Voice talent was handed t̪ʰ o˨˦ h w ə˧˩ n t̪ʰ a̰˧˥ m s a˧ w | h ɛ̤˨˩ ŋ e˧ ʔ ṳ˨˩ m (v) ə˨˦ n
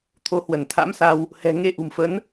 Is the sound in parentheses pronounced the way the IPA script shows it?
no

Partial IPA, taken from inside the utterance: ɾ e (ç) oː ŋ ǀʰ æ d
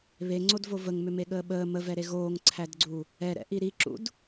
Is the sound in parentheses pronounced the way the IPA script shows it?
no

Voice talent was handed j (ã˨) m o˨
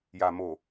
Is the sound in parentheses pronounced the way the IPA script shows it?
no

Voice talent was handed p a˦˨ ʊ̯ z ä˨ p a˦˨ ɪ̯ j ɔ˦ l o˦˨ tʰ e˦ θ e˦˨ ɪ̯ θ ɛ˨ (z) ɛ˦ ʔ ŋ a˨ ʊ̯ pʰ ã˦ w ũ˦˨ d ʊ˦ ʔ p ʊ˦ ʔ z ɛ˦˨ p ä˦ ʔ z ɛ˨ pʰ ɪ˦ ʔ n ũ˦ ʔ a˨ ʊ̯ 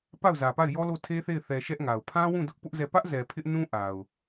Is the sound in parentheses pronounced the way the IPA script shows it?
no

